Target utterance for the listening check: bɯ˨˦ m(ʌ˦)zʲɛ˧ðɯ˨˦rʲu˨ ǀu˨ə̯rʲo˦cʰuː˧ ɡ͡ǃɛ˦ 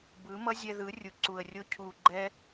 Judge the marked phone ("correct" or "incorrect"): correct